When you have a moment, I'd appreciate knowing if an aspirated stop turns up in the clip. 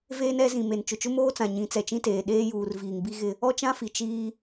no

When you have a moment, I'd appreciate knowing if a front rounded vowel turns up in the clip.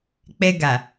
no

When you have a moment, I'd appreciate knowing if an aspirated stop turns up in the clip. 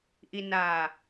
no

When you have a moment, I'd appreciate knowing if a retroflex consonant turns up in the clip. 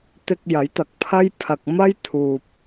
no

